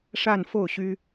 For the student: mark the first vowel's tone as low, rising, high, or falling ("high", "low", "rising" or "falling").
falling